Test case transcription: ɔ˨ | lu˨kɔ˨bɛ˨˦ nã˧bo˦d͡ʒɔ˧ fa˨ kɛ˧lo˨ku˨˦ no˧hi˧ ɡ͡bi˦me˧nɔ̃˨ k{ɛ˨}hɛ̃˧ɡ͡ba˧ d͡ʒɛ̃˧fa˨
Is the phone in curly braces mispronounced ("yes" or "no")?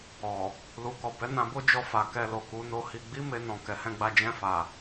no